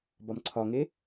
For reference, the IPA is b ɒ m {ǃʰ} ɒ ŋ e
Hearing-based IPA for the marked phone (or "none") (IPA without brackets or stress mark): ǀʰ